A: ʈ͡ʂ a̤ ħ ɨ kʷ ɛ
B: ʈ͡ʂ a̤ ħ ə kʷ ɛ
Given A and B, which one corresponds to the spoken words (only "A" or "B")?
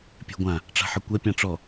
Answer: A